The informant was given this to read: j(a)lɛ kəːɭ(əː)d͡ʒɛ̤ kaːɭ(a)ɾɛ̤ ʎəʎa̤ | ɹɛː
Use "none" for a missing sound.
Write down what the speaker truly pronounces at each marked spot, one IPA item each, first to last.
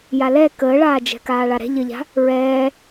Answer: a, aː, a

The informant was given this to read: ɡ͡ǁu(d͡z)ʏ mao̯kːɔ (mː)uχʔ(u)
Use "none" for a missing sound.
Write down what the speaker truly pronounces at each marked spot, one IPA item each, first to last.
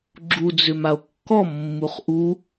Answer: d͡z, mː, u

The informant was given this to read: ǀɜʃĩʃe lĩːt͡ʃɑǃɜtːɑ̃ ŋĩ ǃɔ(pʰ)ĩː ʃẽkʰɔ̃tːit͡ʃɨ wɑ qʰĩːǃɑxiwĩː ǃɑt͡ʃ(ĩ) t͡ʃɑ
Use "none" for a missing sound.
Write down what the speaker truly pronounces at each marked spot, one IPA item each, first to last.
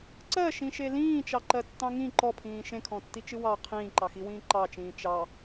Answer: pʰ, ĩː

